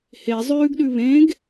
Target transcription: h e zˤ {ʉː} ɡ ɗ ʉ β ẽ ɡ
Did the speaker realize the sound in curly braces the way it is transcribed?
yes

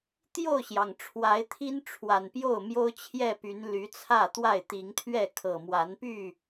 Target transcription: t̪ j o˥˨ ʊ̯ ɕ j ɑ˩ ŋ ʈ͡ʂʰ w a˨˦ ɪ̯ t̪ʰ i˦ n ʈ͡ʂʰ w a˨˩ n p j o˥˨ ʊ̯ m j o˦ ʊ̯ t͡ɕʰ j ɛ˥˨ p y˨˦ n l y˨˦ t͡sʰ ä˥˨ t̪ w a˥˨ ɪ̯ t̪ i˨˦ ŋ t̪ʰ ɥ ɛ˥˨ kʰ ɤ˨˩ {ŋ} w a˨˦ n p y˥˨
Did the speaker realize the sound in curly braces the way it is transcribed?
no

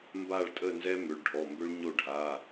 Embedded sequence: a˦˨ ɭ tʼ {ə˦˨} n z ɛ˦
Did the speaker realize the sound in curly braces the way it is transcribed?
yes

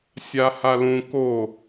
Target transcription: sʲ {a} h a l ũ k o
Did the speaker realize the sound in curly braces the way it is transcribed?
yes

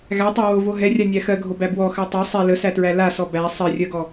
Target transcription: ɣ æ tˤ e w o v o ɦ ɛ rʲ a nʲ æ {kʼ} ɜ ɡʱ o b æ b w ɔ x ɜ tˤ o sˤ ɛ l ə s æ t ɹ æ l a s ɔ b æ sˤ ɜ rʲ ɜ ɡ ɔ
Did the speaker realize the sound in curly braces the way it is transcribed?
no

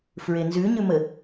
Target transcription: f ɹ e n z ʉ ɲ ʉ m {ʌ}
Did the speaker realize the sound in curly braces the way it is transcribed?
no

